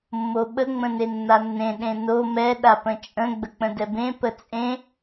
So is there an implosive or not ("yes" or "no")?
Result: yes